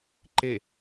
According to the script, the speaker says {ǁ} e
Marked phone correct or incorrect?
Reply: incorrect